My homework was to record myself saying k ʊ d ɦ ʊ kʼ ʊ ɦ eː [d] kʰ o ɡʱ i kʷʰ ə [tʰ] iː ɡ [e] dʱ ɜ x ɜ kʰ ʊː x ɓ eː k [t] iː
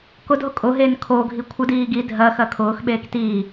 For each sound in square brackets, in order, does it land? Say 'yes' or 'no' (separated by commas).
no, no, no, yes